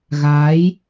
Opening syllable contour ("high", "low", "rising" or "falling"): rising